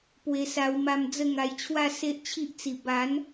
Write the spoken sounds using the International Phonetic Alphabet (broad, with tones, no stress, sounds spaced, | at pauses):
p w e˧ s a˧ w m a˧ m d͡z ə˥˧ ŋ a˧ j t͡ɕʰ w a˥˧ s e˦ ʔ t͡ɕʰ i˦ ʔ t͡s i˨˩ b a˨˦ n